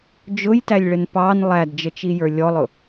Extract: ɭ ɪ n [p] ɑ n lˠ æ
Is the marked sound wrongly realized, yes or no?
no